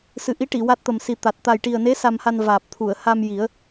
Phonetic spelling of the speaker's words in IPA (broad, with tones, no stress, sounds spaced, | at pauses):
s ɨ˨˩ ʔ i˧˥ ʈ i˨˩˨ w a˦˥ t̚ t̪ ə˨˩ m s i˨˩ t̪ a˨˩ t̚ t̪ a˨˩ j ʈ i˨˩ ə̯ n e˧˥ s a˧ m h a˧ n v aː˨˩ p̚ t̪ʰ u˨˩˨ ə̯ h a˧ m j i˨˩˦ ə̯